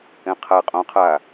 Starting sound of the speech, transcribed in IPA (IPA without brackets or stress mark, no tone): ɛ̃